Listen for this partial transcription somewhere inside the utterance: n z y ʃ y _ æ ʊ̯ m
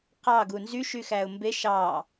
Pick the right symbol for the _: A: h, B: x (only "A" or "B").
B